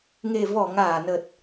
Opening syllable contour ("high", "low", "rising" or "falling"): low